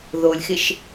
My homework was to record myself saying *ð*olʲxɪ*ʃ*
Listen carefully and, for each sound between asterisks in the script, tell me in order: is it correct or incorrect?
correct, correct

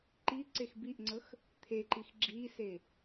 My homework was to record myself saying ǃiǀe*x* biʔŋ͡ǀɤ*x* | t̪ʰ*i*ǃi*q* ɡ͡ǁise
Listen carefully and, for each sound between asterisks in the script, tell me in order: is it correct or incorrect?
correct, correct, incorrect: e, incorrect: x

